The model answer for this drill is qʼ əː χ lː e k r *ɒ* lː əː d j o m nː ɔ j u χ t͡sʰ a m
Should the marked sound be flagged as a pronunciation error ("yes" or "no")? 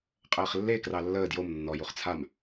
yes